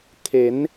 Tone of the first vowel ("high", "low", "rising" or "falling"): rising